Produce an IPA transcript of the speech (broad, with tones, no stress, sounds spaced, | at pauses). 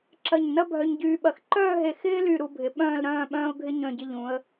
ǁ ɐ˧˩ ɲ n ɐ˥ bʱ œ˧ ɲ ɟ yː˧ ɓ ɐ˧˩ x ǃ œː˥˧ ɦ e˧˩ x ɪː˥ l y˧˩ ɾ u˧ bʱ ɪ˩˧ ɓ œ̃ː˥˧ l ɾ œ̃ː˥˧ ɓ œ̃ː˥ ʊ̯ ɡʱ ɪ˥ ɲ œ̃˧˩ ɟ ɪ˧ ʎ ũ˩˧ ə̯